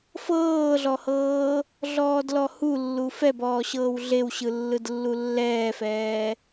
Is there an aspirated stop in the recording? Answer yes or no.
no